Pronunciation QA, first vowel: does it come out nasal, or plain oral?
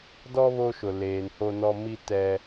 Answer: oral